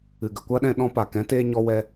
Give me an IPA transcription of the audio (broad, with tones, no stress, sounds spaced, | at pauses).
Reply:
ɨ˨ ɡ ə˨ kʷ a˦ ɗ ɛ̃˧ ɗ ɔ̃˧ p a˨ k ɛ̃˨˦ t eː˧ ɲ ɔ˧ w ɛ˦